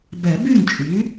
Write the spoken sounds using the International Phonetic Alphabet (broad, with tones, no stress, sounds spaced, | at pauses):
b ɛ˨˩˦ b y˥˩ ŋ t͡ʃʼ y˩˥